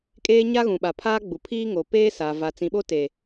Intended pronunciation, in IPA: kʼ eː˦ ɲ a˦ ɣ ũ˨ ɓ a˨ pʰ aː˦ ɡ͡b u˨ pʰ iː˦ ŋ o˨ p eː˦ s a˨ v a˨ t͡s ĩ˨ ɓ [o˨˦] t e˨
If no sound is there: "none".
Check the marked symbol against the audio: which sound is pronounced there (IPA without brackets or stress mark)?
o˦